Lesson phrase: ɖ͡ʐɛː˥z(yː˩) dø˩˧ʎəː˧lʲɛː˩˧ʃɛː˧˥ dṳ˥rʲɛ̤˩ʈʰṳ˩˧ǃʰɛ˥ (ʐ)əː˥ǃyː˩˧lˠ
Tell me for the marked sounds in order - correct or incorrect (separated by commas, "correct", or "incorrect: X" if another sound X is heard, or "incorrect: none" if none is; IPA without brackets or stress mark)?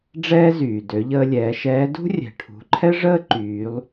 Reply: correct, correct